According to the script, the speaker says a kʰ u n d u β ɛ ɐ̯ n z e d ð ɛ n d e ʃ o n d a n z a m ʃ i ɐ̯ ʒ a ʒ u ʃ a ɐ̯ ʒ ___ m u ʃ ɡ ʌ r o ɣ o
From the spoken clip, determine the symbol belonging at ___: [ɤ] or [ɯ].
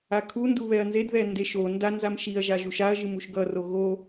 ɯ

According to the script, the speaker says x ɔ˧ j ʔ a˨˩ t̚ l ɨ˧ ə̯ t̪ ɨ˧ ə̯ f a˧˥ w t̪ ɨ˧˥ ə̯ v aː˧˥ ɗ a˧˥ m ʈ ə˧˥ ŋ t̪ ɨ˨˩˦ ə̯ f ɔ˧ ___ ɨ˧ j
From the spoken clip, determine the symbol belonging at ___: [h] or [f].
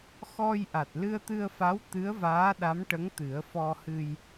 h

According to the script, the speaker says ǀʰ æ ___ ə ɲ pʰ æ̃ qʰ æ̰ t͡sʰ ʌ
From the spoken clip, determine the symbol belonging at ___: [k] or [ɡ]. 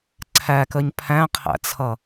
k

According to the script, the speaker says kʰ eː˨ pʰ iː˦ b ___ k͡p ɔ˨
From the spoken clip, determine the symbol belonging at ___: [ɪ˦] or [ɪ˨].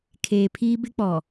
ɪ˦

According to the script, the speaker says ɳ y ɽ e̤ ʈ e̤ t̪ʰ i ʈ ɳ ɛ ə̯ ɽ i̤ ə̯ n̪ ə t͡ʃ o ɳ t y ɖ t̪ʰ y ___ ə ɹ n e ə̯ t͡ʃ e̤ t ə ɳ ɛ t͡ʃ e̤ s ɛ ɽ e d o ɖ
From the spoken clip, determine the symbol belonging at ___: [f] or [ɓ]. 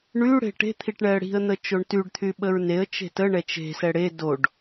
ɓ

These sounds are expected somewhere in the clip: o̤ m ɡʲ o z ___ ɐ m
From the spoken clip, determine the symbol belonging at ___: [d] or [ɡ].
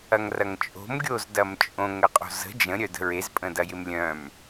d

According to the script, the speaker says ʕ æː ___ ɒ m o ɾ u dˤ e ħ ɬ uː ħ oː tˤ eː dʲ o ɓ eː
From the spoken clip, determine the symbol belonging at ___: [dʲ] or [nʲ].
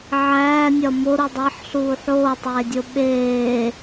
nʲ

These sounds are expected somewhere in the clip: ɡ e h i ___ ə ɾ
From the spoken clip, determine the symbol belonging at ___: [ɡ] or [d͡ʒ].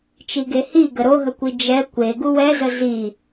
ɡ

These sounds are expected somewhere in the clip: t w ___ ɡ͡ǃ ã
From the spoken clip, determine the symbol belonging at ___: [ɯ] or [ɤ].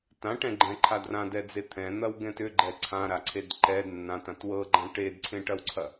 ɤ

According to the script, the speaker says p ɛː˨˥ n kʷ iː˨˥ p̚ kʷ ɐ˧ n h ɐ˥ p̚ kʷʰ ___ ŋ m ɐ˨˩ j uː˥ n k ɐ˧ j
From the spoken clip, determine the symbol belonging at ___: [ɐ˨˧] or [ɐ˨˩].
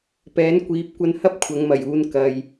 ɐ˨˧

